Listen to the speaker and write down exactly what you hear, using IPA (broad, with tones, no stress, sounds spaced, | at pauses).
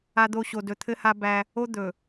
a˦ d̪ o˦ ɕ o˨ d ɵ˨ t̪ʰ ɘ˦ h a˦ b æ˦ | o˦ d̪ ɵ˨